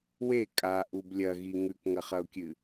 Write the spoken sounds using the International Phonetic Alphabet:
we kʼaʔub lʲɐɣi ŋʉkŋɐχɐʊ̯kʲɨ

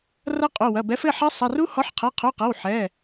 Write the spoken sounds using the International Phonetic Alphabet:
rɐ˦˥ qʼu˩˧˩wɐ˩˧˩bɛ˨˥f ɘ˩˧˩ħɐ˦˥ sˤɐ˩˧˩ru˦˥ hɔ˨˥ħqʰɛ˩˧˩qʰu˩˧˩qɐ˩˧˩w ħɛ˩˧˩

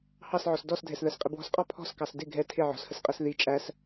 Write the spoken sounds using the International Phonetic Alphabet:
hɑsʕɔs dɔsdʱɛs ðɜsqʼɪbwɔ̤sqʼɒ pʰɔ̤skɑs dɪ ɡʱɛ tʰɪ ʕɔ̤shəsqʼɜs ði t͡ʃʼæs

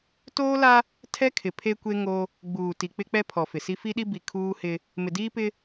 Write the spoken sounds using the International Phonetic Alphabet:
toː˦la˦ | tʰɛ˦kʰɪ˨ pʰe˦kʷe˦ ŋo˦ | ɡ͡buː˨ti˨ k͡pɪ˦k͡pɛ˦ pʰɔ˨fɪ˨si˦ fi˦ɗi˦ bi˨ kʰuː˦hɪ˦ | mɪ˨diː˦pɪ˦

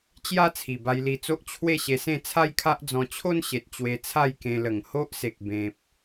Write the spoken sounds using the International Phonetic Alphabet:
t͡ɕja˦ t͡sʰi˨˩ba˧jli˧t͡so˦ʔ t͡ɕʰwe˥˧ɕe˧sẽ˥˧ t͡sʰa˦jkʰa˦ʔd͡zɔ̃˧ t͡ɕʰo˦nɕe˨t̚ t͡ɕwe˧t͡sʰa˥˧jkẽ˧ lə˨˩ŋho˦ʔse˨k̚ bẽ˨p̚

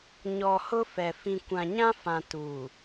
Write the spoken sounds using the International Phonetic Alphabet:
ɲɔ˨ hʊ˦fɛ˨ fĩ˨ kʷã˨ɲã˦fã˨ tuː˨

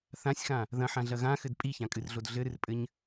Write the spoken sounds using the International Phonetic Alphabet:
θãsʲxã | ðɐ̃ħãɮɐ ɣãxɘd pʼiçãkʼɨrɮod ɮɘɾɨrpʼɘɲ

